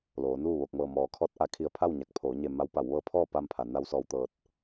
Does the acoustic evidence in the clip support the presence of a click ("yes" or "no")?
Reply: no